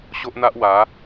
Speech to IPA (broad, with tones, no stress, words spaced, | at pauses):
ɕo˦ʔn̪a˦ʔ wa˨˦